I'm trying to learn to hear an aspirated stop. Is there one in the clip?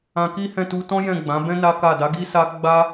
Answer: no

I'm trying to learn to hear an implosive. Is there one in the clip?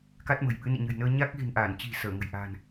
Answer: yes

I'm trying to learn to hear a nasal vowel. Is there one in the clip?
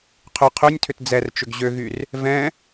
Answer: yes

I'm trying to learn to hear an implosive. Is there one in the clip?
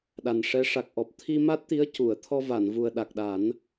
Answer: yes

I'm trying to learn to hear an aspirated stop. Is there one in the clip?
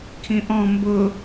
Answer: yes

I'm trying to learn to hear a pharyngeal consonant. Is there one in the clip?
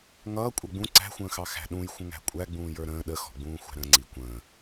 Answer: no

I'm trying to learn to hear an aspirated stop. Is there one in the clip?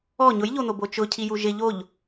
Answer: yes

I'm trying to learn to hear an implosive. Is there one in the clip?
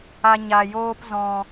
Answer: no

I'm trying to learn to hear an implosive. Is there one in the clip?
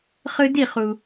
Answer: no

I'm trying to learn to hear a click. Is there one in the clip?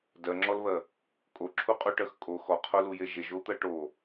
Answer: yes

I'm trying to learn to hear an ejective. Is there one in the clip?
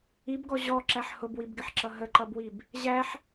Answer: no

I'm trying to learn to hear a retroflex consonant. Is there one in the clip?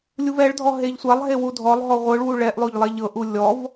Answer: yes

